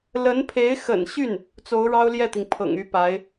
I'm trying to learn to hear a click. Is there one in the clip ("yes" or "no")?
no